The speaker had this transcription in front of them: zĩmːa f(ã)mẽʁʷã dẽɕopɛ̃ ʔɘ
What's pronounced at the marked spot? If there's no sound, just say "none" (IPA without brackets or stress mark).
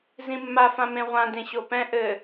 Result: ã